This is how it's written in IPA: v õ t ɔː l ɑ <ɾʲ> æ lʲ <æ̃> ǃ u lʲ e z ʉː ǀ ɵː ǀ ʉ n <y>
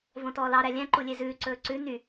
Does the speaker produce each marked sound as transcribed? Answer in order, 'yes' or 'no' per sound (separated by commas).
no, yes, yes